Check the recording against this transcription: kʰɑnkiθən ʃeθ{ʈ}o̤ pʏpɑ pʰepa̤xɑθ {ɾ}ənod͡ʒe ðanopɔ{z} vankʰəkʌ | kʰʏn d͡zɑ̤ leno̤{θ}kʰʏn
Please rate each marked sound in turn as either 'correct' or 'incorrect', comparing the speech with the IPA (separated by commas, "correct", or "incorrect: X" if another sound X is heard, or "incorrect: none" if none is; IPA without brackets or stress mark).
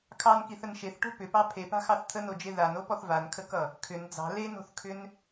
correct, incorrect: t̪ʰ, incorrect: θ, correct